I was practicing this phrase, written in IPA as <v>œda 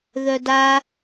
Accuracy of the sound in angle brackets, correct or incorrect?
incorrect: ð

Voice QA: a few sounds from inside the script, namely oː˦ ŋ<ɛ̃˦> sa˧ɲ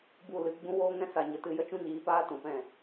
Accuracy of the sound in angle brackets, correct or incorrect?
correct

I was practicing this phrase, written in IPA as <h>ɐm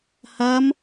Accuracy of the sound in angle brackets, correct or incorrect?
correct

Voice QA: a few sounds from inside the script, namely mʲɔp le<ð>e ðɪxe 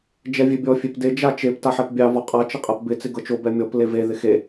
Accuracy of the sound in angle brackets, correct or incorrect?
incorrect: v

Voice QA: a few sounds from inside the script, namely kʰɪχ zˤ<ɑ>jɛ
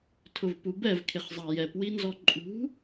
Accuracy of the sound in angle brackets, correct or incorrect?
correct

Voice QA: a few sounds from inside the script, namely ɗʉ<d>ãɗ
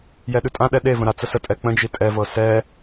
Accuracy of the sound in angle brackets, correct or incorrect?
incorrect: tʼ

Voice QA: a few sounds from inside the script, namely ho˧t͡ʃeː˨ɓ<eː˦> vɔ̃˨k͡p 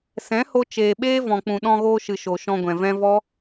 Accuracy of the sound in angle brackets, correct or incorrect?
correct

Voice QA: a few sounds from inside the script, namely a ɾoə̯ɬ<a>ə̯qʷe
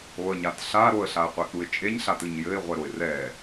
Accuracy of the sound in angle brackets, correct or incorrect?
correct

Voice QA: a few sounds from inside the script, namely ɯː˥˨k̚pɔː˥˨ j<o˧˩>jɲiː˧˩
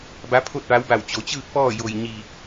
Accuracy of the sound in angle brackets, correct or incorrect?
correct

